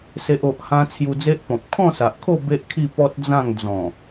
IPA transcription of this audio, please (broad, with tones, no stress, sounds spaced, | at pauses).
s e˨ ʔ o˨ ʔ h ã˧ t͡sʰ j u˧ d͡z e˦ ʔ p ɔ̃˨ p̚ kʰ ɔ̃˥˧ s a˨ ʔ kʰ o˥˧ b e˦ ʔ kʰ i˥˧ p ɔ˦ t̚ d͡z ã˥˧ ŋ d͡z ɔ̃˨˩